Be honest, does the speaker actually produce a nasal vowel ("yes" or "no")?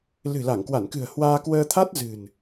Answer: no